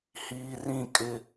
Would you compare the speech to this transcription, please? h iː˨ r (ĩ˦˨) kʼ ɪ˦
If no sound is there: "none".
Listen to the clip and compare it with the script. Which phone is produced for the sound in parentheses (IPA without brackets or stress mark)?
ĩ˦˨